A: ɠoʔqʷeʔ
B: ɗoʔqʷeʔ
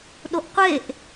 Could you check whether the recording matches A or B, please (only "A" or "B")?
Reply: B